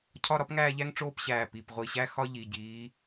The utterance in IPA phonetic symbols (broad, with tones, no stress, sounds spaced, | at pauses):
cʰ ɒ˥˧ ɾ ɒ˥ p ŋ æː˥˧ ʎ æ˥ ŋ ʈ͡ʂ oː˥˧ p ɕ æː˧˩ p i˩˧˩ p ʁʷ i˧˩ ɕ æ˥˧ x ɒ˥ ʎ i˩˧˩ ɟ iː˨˦